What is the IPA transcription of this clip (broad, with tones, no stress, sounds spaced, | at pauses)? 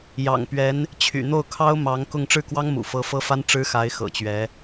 j ɑ̰˨˩ ŋ p ɥ ɛ˧˥ n | t͡ɕʰ y̰˨˩ n̪ o˥˩ ʊ̯ kʰ ɑ˥ ʊ̯ m ɑ˧˥ ŋ k ʊ˥˧ ŋ ʈ͡ʂ ɻ̩˥˩ k w ɑ˥ ŋ m ṵ˨˩ f ɤ˧˥ f ɤ˥ f a˥ n ʈ͡ʂ ɻ̩˥ x a˧˥ ɪ̯ x ɤ̰˨˩ t͡ɕ ɥ ɛ˧˥